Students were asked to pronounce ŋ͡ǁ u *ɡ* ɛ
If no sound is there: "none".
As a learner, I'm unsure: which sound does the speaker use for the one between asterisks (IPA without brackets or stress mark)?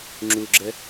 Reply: ɡ͡ǁ